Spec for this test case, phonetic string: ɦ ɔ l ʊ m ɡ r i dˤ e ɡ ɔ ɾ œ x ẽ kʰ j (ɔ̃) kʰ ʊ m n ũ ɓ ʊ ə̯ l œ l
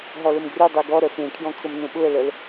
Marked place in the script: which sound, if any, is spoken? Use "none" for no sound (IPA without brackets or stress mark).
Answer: ɔ̃